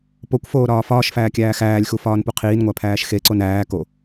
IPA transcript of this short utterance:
p o kʷ f oː ɾ ɒː f ɒː ʃ f æː kʲ æː x æː lʲ x u f ɒː n p u qʰ iː n ŋʷ æ pʰ æː ʃ x e ǀ o n æː k o

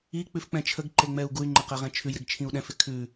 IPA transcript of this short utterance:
i k͡p ʉ f k͡p ɛ̃ t͡ʃʰ ə ɡ ǃ e ŋ͡m ɛ u̯ ɡ u y̯ ŋ͡ǃ e q ɛ ʁ ɛ̃ t͡ʃʰ ʉ j ɾ ɪ ɡ t͡ʃʰ ĩ u̯ ɗ ɛ̃ f ɪ kʰ ʉ

